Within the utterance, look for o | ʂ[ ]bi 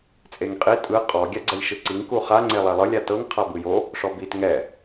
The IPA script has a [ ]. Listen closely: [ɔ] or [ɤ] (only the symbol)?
ɔ